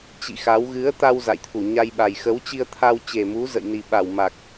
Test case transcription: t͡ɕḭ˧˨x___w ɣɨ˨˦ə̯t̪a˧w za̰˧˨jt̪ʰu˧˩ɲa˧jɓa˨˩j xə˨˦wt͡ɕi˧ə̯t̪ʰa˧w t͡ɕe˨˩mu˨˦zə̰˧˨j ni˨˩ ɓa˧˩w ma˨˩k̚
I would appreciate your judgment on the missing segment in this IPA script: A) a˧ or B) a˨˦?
B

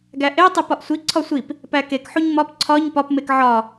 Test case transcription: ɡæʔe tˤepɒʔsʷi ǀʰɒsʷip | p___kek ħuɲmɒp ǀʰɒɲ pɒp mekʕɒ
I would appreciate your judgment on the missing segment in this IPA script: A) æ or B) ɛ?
A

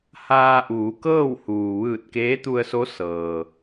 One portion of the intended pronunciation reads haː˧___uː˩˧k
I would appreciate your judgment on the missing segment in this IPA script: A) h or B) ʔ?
B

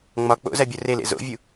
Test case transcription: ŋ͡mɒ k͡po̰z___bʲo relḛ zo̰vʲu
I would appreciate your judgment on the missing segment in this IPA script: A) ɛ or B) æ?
B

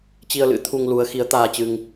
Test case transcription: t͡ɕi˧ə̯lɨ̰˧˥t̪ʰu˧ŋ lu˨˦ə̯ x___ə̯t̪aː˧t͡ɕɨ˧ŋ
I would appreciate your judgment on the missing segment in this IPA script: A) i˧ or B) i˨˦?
B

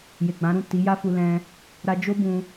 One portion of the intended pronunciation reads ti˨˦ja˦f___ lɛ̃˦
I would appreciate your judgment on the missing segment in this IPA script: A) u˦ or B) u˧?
B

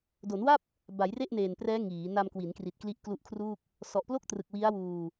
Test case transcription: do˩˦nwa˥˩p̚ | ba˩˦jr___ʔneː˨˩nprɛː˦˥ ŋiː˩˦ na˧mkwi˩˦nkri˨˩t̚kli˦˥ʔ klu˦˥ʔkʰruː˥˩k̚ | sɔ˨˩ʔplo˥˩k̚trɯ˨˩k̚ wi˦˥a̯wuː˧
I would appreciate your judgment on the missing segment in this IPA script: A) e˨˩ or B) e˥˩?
B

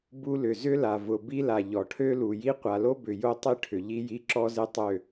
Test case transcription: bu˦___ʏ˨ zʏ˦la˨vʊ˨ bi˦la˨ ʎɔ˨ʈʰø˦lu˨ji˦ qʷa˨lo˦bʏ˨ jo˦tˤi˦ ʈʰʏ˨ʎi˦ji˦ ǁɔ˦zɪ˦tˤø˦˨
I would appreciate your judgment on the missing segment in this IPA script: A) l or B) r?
A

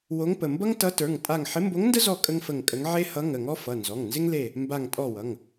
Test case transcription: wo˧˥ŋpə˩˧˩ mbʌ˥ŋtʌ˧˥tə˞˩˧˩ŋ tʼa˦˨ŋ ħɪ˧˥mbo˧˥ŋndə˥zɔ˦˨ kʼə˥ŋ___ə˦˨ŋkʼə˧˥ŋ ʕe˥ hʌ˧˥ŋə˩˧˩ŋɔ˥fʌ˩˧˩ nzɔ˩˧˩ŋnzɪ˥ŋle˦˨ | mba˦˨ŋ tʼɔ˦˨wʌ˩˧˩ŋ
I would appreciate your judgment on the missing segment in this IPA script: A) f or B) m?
A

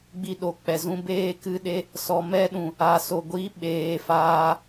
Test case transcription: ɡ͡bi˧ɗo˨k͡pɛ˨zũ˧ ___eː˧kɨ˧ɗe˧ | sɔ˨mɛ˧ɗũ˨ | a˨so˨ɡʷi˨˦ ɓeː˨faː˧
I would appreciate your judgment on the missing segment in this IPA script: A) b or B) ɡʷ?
A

